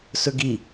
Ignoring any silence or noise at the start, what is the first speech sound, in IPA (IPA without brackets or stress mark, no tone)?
s